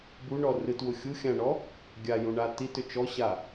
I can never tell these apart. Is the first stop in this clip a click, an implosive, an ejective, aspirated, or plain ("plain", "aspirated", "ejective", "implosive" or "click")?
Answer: plain